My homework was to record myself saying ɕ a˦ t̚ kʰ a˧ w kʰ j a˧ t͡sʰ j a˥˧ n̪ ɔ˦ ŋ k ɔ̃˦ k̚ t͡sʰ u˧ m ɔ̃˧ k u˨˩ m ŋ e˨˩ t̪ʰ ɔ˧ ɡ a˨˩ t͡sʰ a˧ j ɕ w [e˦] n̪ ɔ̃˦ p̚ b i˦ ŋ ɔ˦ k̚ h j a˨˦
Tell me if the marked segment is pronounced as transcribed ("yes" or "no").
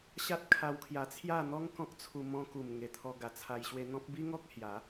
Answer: no